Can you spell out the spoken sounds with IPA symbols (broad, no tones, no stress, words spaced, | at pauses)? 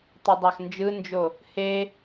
tˤidˤɑxnd͡ʒɯnd͡ʒo | he